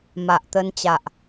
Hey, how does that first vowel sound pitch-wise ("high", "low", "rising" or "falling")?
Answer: low